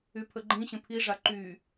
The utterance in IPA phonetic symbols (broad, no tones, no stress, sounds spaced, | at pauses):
y pʰ ə ɡ͡ǃ ĩ ɕ ə̃ pʰ i ʐ a ǃ y